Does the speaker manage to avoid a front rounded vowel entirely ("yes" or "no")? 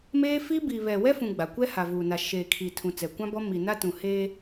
yes